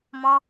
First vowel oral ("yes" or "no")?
no